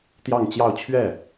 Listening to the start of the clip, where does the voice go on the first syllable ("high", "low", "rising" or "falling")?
falling